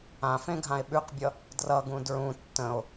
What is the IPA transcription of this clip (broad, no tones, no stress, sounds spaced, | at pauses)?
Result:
ã f ẽ ɡʱ ã e̯ ɓ ʉ q bʲ ʌ | d r ʌ ɡ ũ d ɹ ũ tː ə̃ o̯